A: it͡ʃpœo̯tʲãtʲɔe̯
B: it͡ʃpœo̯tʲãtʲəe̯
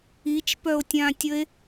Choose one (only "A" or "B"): B